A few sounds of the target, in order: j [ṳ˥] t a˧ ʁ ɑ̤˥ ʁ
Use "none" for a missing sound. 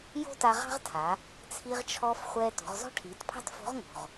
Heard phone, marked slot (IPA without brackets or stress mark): o̤˥